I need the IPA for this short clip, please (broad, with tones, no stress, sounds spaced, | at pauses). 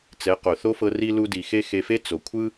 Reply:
t͡s ɛ˨˦ q o˨ θ o˦ f ɤ˧ r i˦ l u˧ d i˨ x e˦ x e˧ f e˦ t͡s o˨ kʷʰ ɯ˦